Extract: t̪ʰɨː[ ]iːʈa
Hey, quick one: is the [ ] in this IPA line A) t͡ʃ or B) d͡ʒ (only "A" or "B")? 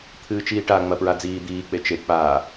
A